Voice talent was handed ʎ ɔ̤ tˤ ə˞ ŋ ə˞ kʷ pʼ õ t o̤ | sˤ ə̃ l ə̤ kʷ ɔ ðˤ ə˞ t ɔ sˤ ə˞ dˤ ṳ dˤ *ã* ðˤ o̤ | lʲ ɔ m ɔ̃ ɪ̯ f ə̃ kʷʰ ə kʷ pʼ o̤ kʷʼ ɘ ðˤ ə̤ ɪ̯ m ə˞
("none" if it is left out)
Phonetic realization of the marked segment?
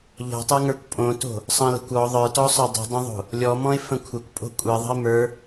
ə̃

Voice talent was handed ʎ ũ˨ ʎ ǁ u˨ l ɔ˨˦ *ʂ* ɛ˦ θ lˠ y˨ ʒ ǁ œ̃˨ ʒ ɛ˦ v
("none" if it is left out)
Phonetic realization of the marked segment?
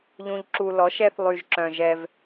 ʃ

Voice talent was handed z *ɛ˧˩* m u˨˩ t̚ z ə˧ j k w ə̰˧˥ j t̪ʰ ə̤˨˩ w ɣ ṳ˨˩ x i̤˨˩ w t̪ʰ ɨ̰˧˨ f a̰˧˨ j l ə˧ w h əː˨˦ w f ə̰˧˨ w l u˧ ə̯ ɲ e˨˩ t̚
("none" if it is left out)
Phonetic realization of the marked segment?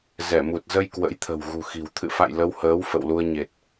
ɛ˧˩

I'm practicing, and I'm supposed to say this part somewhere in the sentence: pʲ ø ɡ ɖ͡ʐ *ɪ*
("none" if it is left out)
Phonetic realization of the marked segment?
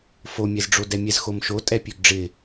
ɪ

